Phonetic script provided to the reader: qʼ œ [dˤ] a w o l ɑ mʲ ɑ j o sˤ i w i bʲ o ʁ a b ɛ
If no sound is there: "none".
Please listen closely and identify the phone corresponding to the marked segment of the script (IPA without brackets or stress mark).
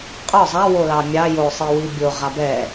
zˤ